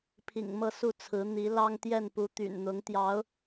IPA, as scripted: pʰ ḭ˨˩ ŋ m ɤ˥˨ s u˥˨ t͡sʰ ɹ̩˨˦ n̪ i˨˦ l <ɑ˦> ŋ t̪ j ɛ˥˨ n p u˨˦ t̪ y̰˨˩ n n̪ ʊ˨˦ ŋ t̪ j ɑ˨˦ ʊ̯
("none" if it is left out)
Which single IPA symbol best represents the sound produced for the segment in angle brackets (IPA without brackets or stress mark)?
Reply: ɑ˦